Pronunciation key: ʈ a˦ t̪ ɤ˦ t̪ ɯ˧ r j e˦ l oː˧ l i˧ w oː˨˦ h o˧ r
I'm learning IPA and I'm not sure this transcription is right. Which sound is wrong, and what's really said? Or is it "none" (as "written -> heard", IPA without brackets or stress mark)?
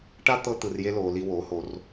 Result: none